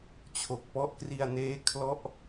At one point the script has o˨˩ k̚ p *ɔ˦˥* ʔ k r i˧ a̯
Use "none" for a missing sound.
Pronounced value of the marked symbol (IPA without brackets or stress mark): ɔ˦˥